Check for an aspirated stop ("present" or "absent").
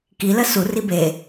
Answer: absent